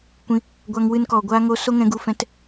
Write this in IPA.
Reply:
kʷ ĩ˧ | ɡʷ a˧ ŋ w ɨ˧ n k ɔ˨ ɡʷ aː˦ ŋ o˧ s o˦ ŋ ɛ̃˧ ɡ u˧ f ɛ̃˧ t

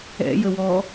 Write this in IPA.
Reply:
ɛ̰ j ə w ɔ

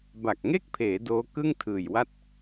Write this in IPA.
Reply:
b a˨˩ k̚ ŋ e˥˩ k̚ pʰ eː˩˦ d oː˦˥ k ɯ˥˩ ŋ tʰ ɯː˨˩ j w a˥˩ t̚

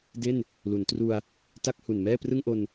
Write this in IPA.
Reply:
d e˥˩ n | l u˩˦ n t r u˧ a̯ | t a˥˩ k̚ h u˨˩ n m ɛː˥˩ p r ɯ˥˩ ŋ ʔ o˧ n

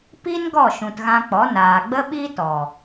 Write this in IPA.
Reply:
p i˦ n ɡ ɔ˦˨ ʃ ũ˨ t ɣ ã˧ k͡p ɔ˨˦ n aː˨ ɡ͡b ə˦ ɓ i˦ t ɔ˨

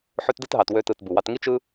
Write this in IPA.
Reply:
ħ ø˧ t d ɯ˧ t ɦ ɑ˨ t w ø˧ t ɯ˨ t b u˨ w ɑ˧ t ŋ i˦ t͡ʃ ɯ˦

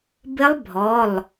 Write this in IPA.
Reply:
b ɪ˦˥ lˠ bʱ ɔ˩˧˩ lˠ

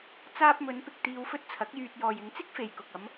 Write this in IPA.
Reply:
t͡s aː˧ p̚ m ɵ˨˧ n p ɪ˨ k̚ t̪ iː˧ w f ɵ˥ t̚ t͡sʰ ɐ˨˥ k̚ j yː˧ t̚ j ɔː˨ j ɪ˨˧ ŋ t͡s ɪ˥ k̚ f e˨ j k ʊ˨ k̚ ɐ˨˧ m

